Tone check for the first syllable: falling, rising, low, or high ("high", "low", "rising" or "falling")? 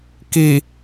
low